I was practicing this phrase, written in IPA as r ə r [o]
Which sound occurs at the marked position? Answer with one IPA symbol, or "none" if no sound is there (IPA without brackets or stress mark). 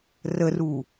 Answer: u